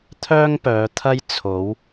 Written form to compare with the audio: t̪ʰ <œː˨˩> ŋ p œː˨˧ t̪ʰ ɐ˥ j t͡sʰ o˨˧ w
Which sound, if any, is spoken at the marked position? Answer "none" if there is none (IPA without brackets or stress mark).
œː˥